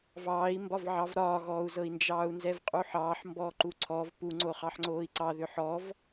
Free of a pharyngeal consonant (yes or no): no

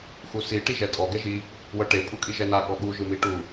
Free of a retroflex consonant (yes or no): no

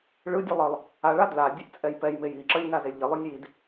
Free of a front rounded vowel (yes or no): yes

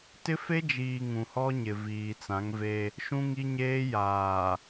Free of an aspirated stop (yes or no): yes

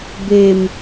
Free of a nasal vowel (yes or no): yes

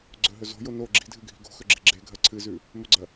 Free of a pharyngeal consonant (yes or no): yes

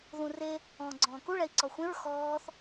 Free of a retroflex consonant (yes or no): no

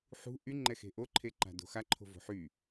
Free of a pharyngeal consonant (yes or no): no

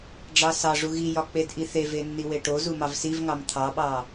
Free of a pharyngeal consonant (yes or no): yes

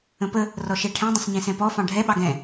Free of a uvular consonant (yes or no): yes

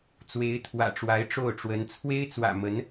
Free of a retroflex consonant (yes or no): no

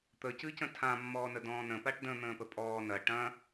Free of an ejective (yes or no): no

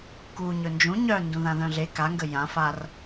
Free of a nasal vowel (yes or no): no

